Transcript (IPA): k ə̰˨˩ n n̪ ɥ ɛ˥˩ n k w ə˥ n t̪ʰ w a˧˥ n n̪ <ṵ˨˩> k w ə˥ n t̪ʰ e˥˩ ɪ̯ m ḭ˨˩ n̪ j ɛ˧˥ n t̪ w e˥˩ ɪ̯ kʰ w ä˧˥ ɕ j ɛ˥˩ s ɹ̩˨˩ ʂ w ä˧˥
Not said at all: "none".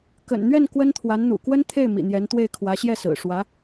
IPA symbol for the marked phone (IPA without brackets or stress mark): ṵ˨˩